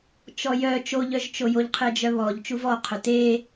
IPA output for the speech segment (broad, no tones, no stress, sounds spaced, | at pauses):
t͡ʃ ɔ j œ t͡ʃ o ʎ œ ʒ t͡ʃ o j o ʎ qʰ e d͡ʒ œ β ɔ ʎ t͡ʃ u v ɔ qʰ œ t e